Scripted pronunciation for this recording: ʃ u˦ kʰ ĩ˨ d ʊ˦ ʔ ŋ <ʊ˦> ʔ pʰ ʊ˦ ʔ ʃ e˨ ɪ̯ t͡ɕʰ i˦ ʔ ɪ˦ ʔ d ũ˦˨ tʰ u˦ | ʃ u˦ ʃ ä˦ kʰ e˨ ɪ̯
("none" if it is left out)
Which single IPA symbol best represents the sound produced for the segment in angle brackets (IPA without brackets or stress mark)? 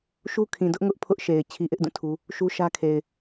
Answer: ʊ˦